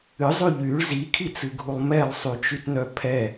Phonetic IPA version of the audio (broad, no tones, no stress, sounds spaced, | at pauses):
ɨ zˤ y ʎ y ɭ z i kʰ i t͡s ɨ ɡʱ u lˠ m ɛ lˠ sˤ y t͡ʃ y t n œ pʰ ɛ